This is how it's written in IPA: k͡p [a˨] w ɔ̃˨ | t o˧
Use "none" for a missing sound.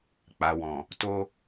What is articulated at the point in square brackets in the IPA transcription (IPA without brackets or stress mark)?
a˨